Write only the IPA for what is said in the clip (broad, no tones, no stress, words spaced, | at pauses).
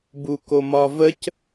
bukomɒvəc